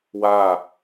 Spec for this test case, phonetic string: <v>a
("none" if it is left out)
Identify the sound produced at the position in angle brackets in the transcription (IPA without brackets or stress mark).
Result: w